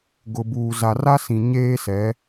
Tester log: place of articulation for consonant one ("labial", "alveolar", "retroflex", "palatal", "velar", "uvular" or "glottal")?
velar